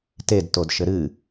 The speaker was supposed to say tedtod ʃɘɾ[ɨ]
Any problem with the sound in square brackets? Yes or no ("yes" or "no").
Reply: no